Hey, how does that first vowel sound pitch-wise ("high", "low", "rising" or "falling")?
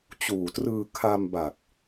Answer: low